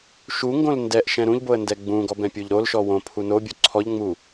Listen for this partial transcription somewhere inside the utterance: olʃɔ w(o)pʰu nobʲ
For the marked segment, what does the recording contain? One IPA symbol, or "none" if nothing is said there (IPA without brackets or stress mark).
õ